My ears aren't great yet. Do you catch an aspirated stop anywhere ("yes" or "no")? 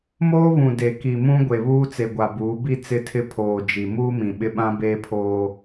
yes